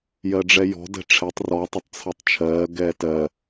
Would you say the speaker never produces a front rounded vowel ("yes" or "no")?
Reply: yes